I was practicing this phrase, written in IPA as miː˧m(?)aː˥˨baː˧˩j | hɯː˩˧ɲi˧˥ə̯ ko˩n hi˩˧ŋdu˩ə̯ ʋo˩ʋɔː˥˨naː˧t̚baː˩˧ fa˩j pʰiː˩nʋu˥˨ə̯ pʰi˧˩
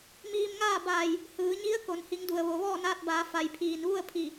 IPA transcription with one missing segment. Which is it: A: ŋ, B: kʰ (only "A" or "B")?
A